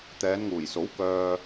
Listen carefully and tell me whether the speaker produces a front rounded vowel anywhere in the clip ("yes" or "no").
yes